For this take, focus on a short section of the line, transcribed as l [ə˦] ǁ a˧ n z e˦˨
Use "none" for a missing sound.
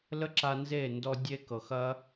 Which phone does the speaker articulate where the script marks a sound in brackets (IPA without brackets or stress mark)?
ə˦